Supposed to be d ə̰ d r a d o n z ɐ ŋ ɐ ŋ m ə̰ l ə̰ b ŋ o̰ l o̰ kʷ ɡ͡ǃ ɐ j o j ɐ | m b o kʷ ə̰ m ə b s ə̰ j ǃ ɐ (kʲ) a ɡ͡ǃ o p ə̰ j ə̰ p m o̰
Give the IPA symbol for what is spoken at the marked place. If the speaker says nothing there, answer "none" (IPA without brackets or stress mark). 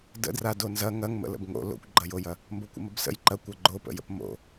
kʷ